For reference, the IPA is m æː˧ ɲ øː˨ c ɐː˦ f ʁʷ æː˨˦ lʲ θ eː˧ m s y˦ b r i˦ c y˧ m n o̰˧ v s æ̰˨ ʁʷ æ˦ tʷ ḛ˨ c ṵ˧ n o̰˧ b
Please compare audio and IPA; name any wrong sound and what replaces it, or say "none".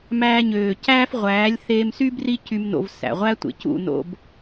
ɐː˦ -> æː˦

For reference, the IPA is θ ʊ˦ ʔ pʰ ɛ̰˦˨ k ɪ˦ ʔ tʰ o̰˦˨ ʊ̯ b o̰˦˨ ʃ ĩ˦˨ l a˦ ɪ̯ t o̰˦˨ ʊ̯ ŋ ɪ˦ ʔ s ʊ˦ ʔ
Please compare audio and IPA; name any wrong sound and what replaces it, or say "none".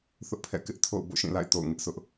a˦ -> a̰˦˨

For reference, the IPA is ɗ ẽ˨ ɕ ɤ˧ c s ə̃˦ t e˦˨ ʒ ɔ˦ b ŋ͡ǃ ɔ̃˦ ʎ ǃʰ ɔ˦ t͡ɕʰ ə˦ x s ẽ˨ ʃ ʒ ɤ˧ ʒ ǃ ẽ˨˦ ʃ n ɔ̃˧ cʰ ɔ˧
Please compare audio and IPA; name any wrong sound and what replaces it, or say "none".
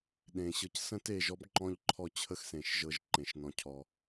none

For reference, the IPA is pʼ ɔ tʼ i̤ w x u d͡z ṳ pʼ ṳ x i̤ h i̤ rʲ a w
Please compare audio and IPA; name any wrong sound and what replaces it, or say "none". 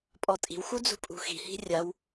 none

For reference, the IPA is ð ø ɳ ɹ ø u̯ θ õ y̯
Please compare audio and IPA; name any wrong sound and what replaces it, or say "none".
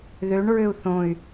none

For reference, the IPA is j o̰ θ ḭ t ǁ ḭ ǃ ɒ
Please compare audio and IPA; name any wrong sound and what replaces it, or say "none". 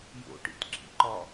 θ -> ʈ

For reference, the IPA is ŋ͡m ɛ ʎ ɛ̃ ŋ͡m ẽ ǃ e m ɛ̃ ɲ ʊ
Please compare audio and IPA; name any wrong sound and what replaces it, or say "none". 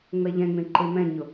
none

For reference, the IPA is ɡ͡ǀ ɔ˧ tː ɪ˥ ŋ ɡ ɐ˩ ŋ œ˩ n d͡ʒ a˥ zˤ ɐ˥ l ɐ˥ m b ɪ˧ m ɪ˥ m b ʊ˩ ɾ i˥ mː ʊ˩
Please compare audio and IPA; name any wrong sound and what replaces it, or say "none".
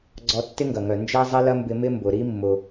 none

